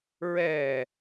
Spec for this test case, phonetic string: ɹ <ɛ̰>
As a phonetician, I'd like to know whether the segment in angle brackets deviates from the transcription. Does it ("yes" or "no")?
yes